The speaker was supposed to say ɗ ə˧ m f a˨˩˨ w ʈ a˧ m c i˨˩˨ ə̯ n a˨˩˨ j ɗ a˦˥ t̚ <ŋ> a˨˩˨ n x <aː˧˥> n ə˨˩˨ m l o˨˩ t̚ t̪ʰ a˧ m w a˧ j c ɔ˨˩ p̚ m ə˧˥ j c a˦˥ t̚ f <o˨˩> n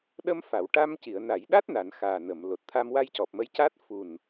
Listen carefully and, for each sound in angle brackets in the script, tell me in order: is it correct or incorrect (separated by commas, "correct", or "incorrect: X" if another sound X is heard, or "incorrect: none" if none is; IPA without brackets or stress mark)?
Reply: incorrect: n, incorrect: aː˨˩, incorrect: u˨˩